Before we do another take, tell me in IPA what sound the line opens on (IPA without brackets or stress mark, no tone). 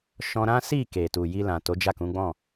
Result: ʃ